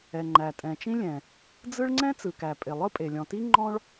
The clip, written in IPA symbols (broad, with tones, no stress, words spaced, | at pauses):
ɛ˩ ŋ͡ǃæ˩tʼɛ̃˩t͡ʃĩ˥lʲɛ̃˩ | d͡zɯ˥ɭ ŋ͡ǀɛ̃˥ t͡sɯ˩kæ˩ pʼɪ˩lˠɯ˥pʼe˩ lʲɔ̃˩ti˥ ŋ͡ǃɔ̃˥ɭ